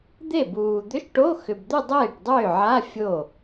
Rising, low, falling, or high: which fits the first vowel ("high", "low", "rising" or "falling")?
falling